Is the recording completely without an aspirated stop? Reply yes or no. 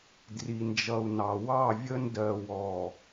yes